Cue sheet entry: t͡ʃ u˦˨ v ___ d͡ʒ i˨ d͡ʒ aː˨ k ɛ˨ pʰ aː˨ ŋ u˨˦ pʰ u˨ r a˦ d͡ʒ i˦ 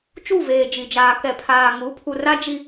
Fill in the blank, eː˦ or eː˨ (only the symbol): eː˨